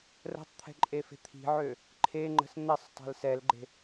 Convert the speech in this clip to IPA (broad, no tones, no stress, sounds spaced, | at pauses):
r ə̤ tˤ t̪ʰ ɛ̤ ǃʼ e f e̤ t̪ʰ i̤ ʕ ø | ǃʰ e ŋ͡ǃ ə̤ s n̪ ɛ sˤ tˤ ɛ̤ l s ɛ l ɡ͡ǃ e̤